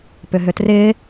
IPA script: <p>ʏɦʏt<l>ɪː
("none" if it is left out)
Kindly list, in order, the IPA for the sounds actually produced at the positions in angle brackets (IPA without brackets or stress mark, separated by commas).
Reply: p, r